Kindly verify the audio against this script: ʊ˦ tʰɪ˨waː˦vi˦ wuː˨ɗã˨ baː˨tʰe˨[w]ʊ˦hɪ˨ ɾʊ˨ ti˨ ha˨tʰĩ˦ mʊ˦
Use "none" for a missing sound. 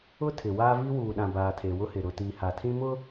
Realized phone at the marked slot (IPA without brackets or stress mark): w